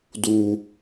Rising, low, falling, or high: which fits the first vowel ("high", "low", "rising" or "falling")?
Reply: high